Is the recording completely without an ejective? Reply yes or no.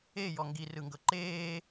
yes